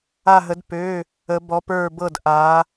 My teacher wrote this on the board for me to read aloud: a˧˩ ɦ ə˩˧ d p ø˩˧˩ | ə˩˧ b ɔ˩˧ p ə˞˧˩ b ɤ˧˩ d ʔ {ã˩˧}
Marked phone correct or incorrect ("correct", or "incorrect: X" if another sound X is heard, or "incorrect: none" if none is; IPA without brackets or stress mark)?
incorrect: a˩˧